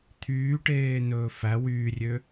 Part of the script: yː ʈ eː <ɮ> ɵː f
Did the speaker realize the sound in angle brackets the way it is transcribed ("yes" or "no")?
no